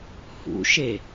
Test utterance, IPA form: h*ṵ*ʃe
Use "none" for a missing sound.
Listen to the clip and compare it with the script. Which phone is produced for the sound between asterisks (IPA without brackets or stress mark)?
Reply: ṵ